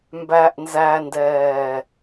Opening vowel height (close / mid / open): open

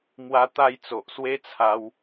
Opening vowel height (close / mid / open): open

